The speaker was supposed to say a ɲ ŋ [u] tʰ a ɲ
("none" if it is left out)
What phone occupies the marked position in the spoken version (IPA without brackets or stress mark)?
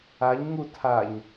u